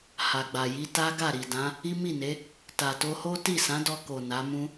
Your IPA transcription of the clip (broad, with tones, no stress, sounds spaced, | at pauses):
h a˨ ɡ͡b a˨ j i˧ t a˦ ɡ a˦˨ ɾ i˨ d ã˨˦ | i˦ m i˦˨ n e˨˦ | t a˨ t o˧ h o˦ t i˦˨ s ã˨˦ d ɔ˧ k o˨ n a˨˦ m ũ˦